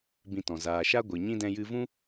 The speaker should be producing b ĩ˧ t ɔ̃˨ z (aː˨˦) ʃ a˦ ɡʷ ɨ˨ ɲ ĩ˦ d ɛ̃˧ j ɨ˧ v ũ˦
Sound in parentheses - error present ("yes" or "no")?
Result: yes